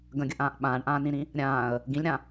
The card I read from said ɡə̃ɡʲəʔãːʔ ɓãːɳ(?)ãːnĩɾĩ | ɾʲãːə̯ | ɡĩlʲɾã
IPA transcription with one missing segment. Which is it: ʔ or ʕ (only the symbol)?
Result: ʔ